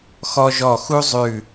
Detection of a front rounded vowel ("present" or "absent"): absent